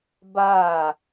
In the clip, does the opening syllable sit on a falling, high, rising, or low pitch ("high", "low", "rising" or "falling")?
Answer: falling